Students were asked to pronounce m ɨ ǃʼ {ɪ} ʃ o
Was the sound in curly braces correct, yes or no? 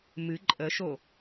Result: no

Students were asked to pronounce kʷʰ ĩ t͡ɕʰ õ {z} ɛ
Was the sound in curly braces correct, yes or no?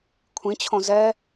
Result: yes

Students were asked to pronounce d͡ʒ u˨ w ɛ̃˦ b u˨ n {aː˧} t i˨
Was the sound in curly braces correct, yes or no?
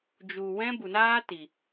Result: no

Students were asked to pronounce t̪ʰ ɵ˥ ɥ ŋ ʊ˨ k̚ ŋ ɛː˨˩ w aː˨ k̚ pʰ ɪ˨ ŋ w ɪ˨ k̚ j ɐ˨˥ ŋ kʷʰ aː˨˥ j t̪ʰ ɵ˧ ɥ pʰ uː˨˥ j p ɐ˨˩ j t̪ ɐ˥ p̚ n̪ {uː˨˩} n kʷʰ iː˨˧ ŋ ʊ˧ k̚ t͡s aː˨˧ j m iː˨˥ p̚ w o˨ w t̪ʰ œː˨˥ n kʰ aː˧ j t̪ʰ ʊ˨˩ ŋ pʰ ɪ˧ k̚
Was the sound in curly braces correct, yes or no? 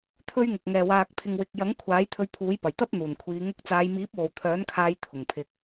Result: yes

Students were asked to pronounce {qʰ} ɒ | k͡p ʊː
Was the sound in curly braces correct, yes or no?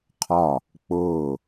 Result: yes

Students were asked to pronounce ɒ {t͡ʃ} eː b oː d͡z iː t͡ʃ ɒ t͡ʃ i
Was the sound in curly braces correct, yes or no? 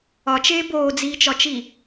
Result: yes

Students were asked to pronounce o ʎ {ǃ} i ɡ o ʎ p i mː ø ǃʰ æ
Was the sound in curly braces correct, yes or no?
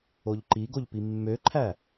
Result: yes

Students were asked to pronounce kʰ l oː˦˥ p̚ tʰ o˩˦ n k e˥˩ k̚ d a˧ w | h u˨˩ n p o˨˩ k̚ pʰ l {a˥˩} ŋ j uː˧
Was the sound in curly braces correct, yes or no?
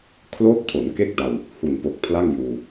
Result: yes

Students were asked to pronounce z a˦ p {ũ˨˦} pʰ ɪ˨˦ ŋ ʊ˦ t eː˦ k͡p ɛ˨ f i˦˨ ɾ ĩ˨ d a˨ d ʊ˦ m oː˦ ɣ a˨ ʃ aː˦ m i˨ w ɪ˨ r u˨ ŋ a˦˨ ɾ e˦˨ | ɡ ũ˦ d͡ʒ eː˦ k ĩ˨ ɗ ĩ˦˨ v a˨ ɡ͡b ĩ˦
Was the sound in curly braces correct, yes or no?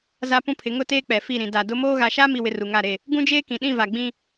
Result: no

